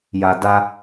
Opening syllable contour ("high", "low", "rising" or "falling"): low